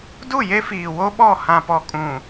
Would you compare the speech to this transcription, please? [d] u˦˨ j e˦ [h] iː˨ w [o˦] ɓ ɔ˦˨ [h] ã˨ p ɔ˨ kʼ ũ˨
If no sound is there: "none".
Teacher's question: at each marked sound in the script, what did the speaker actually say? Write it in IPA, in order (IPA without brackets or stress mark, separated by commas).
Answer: d, f, o˦, h